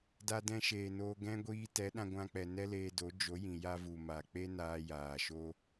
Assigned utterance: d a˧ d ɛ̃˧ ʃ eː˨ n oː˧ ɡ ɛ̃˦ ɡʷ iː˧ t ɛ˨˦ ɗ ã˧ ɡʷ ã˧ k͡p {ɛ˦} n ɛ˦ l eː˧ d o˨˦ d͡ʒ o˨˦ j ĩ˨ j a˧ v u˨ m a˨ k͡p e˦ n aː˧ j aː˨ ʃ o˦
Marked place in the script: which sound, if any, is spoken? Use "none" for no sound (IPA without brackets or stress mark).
ɛ˨